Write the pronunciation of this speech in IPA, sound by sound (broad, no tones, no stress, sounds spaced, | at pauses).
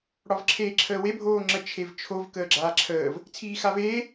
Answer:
ɽ ɒ v ǁʰ eː ǁʰ əː w e bʱ oː ŋ͡ǁ ə t͡ʃʰ e v t͡ʃʰ o v k əː ɡ͡ǁ aː ǁʰ əː v | t͡sʰ iː x a v eː